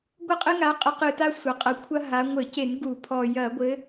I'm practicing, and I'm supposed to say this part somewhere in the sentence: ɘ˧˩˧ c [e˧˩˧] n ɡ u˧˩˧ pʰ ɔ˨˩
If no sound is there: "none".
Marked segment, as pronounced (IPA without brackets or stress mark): e˧˩˧